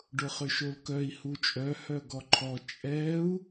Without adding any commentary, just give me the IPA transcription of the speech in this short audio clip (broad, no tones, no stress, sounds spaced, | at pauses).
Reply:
ɖ ʊ χ ʏ ʃ o l k œ i̯ h u t͡ʃʼ œ h œ ɡ ɔ ǃʰ ɔ t͡ʃʼ ɛ u̯